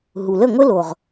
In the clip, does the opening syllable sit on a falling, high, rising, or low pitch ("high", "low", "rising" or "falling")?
low